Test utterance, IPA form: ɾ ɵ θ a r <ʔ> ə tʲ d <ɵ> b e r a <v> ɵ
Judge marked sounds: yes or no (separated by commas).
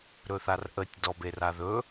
yes, no, no